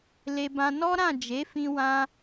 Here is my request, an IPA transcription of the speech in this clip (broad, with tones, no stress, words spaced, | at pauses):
le˧bã˧ nɔ˦ɾã˦˨d͡ʒe˨˦fĩ˧ wã˦